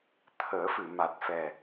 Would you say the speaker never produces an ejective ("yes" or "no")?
yes